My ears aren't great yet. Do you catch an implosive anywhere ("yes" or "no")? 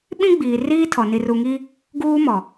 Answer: yes